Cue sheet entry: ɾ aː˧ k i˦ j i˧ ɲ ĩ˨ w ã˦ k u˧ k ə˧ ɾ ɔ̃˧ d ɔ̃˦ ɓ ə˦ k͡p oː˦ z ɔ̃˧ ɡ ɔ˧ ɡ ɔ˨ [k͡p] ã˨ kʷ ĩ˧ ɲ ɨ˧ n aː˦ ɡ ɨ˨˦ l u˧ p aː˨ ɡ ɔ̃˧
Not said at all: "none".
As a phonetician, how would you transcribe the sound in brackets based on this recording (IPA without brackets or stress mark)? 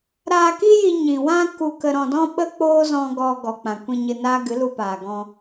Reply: k͡p